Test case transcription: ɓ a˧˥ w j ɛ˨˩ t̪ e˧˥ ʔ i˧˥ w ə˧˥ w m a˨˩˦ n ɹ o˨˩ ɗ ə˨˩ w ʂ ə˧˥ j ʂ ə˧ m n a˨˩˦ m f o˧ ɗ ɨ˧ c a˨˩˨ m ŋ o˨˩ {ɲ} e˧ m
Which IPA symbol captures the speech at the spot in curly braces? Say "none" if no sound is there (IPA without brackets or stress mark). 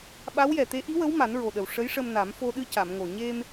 ɲ